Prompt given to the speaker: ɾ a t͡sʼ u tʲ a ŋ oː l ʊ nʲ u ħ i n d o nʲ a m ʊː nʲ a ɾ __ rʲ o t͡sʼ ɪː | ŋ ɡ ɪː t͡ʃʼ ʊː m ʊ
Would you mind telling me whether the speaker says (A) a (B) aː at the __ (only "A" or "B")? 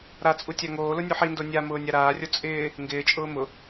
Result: B